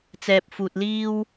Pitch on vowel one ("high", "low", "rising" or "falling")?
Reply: low